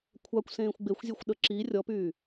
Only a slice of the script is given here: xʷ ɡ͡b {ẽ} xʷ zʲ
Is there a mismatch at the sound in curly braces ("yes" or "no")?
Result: yes